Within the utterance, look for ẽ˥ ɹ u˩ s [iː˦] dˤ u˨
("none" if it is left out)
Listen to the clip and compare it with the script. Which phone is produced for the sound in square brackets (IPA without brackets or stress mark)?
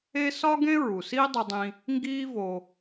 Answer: iː˦